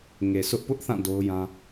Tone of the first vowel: low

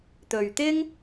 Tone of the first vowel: low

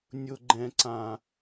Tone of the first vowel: low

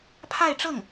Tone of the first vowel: falling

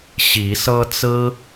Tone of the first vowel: rising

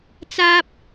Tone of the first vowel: high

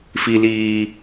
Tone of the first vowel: low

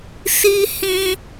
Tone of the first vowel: high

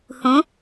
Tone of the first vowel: rising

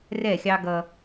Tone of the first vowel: falling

